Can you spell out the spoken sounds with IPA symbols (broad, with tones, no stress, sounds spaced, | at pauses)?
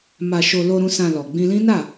m a˧ ʃ o˧ l o˧ ɾ ũ˧ s ã˧ l ɔ˨ ɡ͡b ĩ˧ l ĩ˦ n a˦˨